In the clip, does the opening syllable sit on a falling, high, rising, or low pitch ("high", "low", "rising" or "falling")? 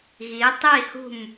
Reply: rising